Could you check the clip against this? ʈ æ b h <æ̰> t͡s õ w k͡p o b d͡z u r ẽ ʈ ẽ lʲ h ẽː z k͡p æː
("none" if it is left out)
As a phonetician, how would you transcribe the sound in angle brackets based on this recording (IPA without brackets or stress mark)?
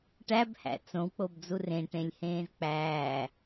æ̰